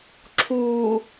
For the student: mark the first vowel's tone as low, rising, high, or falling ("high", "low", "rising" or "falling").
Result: low